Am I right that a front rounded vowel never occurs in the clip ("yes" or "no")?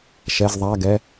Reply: yes